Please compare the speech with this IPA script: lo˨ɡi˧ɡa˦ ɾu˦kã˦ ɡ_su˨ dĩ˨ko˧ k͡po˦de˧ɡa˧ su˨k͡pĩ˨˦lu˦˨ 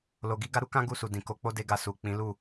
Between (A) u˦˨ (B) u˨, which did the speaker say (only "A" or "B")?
A